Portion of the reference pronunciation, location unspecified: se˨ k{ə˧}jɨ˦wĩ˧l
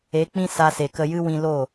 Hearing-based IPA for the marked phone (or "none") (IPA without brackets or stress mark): ə˧